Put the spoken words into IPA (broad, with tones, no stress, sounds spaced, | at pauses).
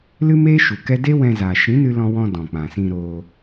l ɨ˦ m eː˦ ʃ u˨ k ɛ˦ d e˦ w ɛ̃˧ z aː˨ ʃ ĩ˨˦ n ɨ˧ l ɔ̃˧ w ɔ̃˧ d ɔ̃˨ k͡p ã˨ s ĩ˧ ɾ oː˧